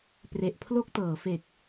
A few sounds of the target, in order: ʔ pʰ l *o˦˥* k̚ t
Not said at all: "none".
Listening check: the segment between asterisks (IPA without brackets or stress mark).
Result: o˥˩